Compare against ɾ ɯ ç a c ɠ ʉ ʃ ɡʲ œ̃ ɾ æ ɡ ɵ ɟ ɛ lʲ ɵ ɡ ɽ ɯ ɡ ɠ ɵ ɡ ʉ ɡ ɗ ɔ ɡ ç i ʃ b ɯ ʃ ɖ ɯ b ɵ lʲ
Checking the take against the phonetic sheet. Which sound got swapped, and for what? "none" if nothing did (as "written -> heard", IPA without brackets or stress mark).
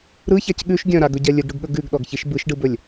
æ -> a